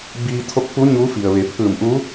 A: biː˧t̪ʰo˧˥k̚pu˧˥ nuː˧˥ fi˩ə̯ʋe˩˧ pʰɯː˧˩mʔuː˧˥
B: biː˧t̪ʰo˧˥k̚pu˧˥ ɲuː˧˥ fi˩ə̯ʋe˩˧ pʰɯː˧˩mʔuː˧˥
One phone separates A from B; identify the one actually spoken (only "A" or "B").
B